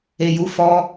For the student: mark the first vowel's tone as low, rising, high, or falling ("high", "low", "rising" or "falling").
low